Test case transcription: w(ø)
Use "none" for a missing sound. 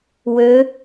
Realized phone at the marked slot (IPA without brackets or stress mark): ø